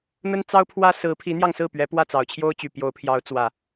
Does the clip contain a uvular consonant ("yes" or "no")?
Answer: no